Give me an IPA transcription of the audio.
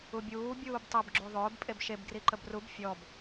ubʲuː bʲuːbtˤɯb ɡ͡ǁuðˤʊːb pʼebʃeb ɡriǃəbrub fʲɔb

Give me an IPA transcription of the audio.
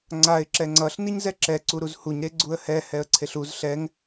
ŋ͡ǀaɪ̯ ǁɛŋ͡ǀʌɬ niɲzɛǁɛ ǀuɾuzhuɲ ɾeɡ͡ǀuə̯hɛ hɛə̯ǀʰeɬuz ɬɛŋ

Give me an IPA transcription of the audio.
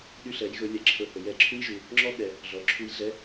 ɗy˧ɬɛ˩˧jɣɵ˩˧ lʲɛ˩˧ǁʰɵ˧hɵ˩˧jɛ˧˥ ǁʰu˥jʒu˩˧ | ŋ͡ǁɔ˥ ɠɛ˩˧ | ɮɔ˩˧ǁʰu˧jɮɛ˧˥

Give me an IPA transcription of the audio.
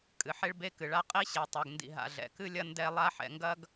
kʼɨ˨ħe˥ɭ be˦kɨ˩ɭa˦ qʼi˥ ɕe˨tˤa˨ɡndḭ˨ ɦa̰˨ɮɛ̰˩kɨ˥lʲɐ˥ ndɛ˦ lˠa˦ħɛ̰˨ŋɡɐ˥ɡ

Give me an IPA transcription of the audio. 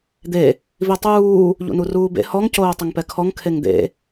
d̪e | vitˤuː | ʎṵnuruːbḛ hɔŋ coːtˤɪŋpɛkʰɔŋ kʰeŋd̪ḛ

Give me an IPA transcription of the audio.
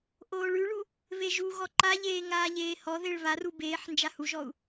ʔoːɭʉɭu | βeʒuɣɔ ǃaʎeː ŋaːʎeːhɔðeɭ βaru beːħ nd͡ʒahuʒɔu̯

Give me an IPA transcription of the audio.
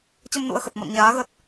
t͡ɕə˧mnṵ˧˥ə̯xə˨˩t̚mɔ̰˧˨n ɲaː˨˦ɣə˦˥t̚

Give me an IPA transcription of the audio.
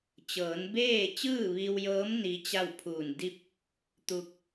t͡ɕɤː˩˧nbeː˥˨ t͡ɕɯː˥˨ʋi˧wjɤː˧˥m ni˧˥t͡ɕa˥˨w pʰuː˧˩ndi˥˨p̚ | t̪u˧k̚

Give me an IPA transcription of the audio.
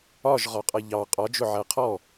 ɒʒʁɒqʼʌ ʎɑ qʼɒd͡ʒʊʕæ qʰɔ

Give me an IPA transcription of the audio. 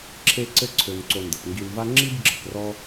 ǁʰe˦ǀɘ˦ǀʰø˨nǀo˨ ndə˩pŋɡi˨nva˦ ŋ͡ǁi˥bɡ͡ǁə˩krɔ˦

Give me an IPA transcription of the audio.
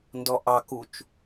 ndɔʔɑkut͡ʃ

